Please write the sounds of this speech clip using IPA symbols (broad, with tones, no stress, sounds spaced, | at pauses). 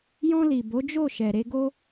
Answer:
j ɔ̃˧ l i˨ b o˨˦ d͡ʒ o˦˨ ʃ ɛ˨ ɾ e˧ ɡ o˧